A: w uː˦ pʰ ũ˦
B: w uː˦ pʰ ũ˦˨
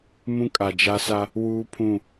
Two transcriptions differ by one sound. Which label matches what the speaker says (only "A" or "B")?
B